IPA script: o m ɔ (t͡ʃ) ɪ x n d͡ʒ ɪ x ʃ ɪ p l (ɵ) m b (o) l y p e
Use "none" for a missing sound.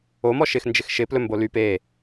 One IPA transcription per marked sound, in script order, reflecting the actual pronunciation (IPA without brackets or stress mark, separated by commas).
ʃ, ɵ, o